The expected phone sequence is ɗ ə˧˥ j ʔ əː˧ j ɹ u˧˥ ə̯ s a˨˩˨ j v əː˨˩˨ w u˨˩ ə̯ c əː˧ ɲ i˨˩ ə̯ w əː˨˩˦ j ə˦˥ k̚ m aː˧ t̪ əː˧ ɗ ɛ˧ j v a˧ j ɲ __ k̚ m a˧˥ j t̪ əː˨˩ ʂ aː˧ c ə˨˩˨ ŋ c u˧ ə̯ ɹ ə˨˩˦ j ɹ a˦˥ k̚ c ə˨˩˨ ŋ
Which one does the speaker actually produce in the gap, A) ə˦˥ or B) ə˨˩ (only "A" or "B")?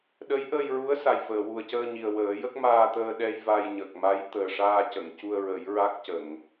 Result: B